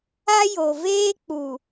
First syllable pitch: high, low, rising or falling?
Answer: high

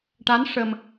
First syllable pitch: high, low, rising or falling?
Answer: rising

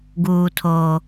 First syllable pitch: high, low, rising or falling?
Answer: low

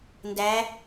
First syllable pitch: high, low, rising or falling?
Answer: rising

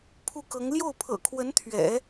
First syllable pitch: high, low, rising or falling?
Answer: falling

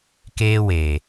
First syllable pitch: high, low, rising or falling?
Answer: high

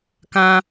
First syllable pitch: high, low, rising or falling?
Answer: high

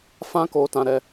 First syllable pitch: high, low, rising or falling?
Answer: high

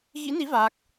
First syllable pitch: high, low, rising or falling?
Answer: rising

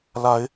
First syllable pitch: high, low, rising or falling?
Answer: rising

